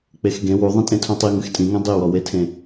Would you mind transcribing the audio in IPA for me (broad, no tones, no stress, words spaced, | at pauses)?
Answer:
k͡pexɡẽ wu ðˤĩtʼẽtʰũtˤi ŋɨxtʼĩŋɛ̃ dˤiwɔwetʰẽ